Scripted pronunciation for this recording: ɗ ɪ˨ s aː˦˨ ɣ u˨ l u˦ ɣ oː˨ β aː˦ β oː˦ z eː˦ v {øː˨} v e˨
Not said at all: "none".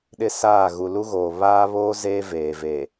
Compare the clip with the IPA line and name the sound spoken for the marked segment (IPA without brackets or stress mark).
eː˨